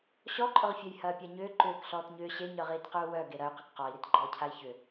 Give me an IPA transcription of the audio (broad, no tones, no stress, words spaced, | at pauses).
ɕɔǃʼʊʁfʲœj hɐːpʲaɲʏː ǃʏːk ɬɔːtɲʏː ɕeɲœʁiːtqyu̯ wœ ɡeɾɐy̯ qʏkqɔi̯ɾit ɡ͡ǃɔːcʰai̯çʏ